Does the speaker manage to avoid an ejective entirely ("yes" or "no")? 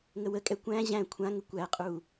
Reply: no